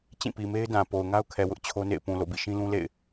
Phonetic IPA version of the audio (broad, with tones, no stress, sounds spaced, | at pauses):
t͡ɕ ĩ˦˨ p i˨ m e˦ ɪ̯ d ã˨ p o˨ ʊ̯ ŋ a˦ ʊ̯ kʰ ɛ˨ w ʊ˦ ʔ t͡ɕʰ o˦ n ḛ˦˨ ɪ̯ p ũ˨ l o̰˦˨ b ḭ˦˨ ʃ ĩ˦ l ũ˦ l ḛ˦˨ ɪ̯